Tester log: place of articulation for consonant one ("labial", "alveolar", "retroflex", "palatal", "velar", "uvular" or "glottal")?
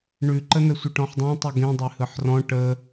retroflex